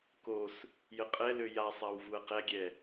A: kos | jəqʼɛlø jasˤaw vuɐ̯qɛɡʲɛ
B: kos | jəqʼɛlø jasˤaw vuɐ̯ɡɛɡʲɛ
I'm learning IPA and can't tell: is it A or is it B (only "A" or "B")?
A